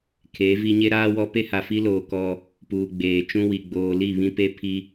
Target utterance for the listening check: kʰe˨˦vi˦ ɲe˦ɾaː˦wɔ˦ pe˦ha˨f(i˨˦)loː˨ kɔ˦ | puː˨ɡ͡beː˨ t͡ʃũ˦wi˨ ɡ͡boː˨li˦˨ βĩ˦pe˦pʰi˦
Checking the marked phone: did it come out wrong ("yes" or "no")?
yes